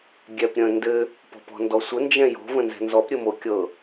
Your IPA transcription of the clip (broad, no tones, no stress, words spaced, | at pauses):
ɡʲɛpɾʲə̃ ndɘ | pɔ̤pɔ̤ndɔsʷə nd͡ʒɛ̃jo̤ və̃nzɛ̤nzɔp ɾʲɘmokʲɤ